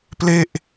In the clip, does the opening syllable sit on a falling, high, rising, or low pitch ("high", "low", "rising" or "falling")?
falling